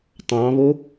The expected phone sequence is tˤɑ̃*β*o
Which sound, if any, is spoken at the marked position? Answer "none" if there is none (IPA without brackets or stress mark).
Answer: β